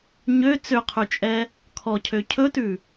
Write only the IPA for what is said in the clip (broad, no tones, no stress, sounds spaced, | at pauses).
ɲ ø t͡s ø qʰ ʉ t͡ʃʼ ɛ | kʰ ɔ cʰ ø cʰ ɵ t ʉ